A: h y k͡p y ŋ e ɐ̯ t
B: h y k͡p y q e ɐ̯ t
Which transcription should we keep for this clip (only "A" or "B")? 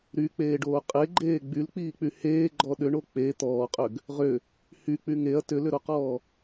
A